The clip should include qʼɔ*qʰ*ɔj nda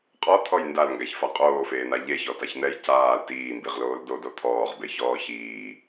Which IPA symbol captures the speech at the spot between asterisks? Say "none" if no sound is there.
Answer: t̪ʰ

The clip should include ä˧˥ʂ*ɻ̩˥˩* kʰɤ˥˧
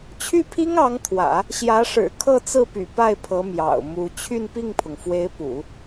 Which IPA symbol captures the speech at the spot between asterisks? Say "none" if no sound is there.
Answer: ɻ̩˨˩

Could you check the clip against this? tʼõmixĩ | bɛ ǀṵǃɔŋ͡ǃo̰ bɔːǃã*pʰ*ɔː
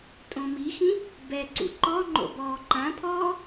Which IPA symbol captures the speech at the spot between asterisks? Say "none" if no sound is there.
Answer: pʰ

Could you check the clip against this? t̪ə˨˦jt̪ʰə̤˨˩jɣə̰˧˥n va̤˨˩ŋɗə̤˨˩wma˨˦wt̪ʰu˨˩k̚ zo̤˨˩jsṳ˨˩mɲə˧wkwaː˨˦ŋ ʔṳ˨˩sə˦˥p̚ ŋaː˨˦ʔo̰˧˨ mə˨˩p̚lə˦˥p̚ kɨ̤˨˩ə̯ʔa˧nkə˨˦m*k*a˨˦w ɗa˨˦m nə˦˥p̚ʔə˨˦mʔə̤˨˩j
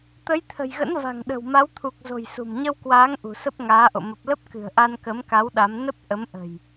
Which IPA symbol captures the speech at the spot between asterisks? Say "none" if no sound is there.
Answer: k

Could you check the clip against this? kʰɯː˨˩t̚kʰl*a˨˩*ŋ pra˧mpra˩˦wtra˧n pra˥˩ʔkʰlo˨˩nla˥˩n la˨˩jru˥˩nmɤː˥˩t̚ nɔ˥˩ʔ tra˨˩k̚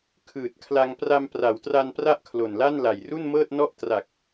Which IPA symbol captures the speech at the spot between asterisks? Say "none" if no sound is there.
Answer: a˧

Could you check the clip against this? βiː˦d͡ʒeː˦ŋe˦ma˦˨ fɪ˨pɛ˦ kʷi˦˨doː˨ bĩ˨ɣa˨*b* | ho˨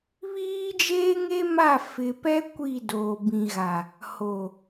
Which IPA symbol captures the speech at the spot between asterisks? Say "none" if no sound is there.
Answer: none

